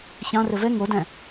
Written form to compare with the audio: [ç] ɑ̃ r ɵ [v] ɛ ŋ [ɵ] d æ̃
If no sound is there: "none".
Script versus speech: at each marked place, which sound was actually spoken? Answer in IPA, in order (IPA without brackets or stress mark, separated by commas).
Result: ç, v, o